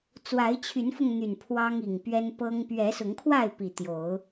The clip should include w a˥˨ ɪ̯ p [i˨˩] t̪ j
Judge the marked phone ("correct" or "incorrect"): correct